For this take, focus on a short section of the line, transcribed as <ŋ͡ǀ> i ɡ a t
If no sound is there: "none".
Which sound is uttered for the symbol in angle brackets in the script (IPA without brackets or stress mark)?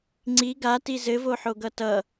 ŋ͡ǀ